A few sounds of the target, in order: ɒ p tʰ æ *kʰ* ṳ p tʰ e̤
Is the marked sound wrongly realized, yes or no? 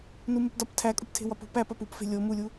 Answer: yes